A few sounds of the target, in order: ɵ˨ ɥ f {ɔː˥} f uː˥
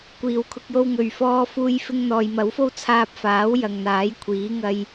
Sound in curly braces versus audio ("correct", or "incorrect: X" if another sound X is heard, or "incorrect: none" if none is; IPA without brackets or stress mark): correct